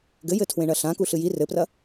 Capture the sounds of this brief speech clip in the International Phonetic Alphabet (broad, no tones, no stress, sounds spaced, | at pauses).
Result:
ɡ ɘ j ɘ tʰ w ẽ ɳ ɐ ɬ ã k u ɬ ɨ j i r ɘ p r ɐ